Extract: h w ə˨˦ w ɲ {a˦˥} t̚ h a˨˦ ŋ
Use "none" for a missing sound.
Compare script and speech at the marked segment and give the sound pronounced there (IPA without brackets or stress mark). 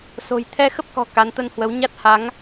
a˦˥